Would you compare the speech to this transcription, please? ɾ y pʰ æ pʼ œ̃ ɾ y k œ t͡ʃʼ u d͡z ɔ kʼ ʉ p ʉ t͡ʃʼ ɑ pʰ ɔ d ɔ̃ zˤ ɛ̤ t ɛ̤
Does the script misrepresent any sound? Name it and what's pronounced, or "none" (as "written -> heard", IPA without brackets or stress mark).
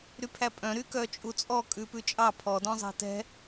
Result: d͡z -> t͡sʼ